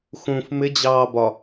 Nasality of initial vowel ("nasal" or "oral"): nasal